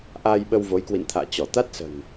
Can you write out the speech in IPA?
ʔ aː˧ j ɓ ə˧ w v o˨˦ j k w ḭ˧˨ n t̪ʰ a̰ː˧˨ t͡ɕ ɔ˧˩ t̪ a˦˥ t̚ s ə̤˨˩ n

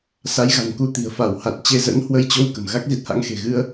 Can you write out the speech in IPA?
s a˨˦ j ɣ a̤˨˩ n k u˧ t̪ i̤˨˩ ə̯ f a˧˩ w h a˨˩ t̚ t͡ɕ e˧ z ə̰˧˥ n h w ə˧ j t͡ɕ o˧ w k ə̤˨˩ m ɣ a˦˥ k̚ z i˦˥ t̚ h a̰˧˥ ŋ x e̤˨˩ ɣ ɨ˧ ə̯

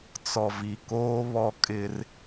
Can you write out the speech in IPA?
t͡s ɔ˨ v i˨ k oː˦ β ɔ˦ kʼ ɪ˦ r

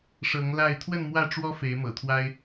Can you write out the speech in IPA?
ʂ ɤ˨˦ ŋ l a˥˨ ɪ̯ t̪ʰ w ə˥˨ n m w ä˥˨ ʈ͡ʂ w ɔ˦ f e˨˦ ɪ̯ m ɤ̰˨˩ t̪ʰ w a˦ ɪ̯

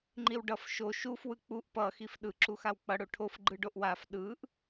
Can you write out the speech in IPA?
ŋ͡ǃ i w ɖ ʌ f ʃ o ʃ u f w ɯ k͡p u ʔ p ʌ x i f ɗ ɯ ǁ u x a w k͡p ʌ ɽ o ʈʰ o f ɡ͡ǃ ɯ ɖ o ʔ w a f ɗ ɯ ʔ

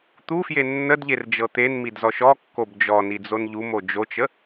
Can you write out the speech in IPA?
t̪ u f j e nː ə d ʎ e r d͡ʒ ɤ t̪ e n m i d z ɔ ʃ ɔ kː o b d͡ʒ ɔ n i d͡z o n ʎ u m o d͡ʒ o t͡ʃ ə

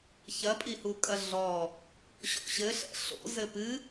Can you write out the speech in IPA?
ç ɐ pʼ i h u kʼ ɐ ɮ ɔ | ɕ ɔ̰ ɕ ɘ ɬ ɛ̰ ɬ o̰ z ɘ p ɨ

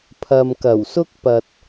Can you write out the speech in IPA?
pʰ ɐ˨ m k ɐ˨˩ w s ʊ˥ k̚ p ɐ˨ t̚

